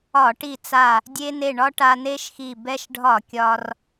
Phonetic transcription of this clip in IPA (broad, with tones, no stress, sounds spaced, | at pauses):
ɒ˧˩˧ ʈ i˧˩ t͡s a˧˩ | dʲ e˧ n e˧˩ ɳ ɒ˧ ʈ a˧ n e˦˥ ʃ x i˧˩ b ɛ˧ ʃ ɖʱ ɒ˧˩˧ kʲ ɒ˧ r